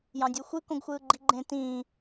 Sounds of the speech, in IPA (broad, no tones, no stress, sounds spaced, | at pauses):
j ɑ̃ dʲ u xʷ ɯ k õ ɡ xʷ ɯː ɡ͡ǃ i ɡ͡ǃ ẽ t ĩ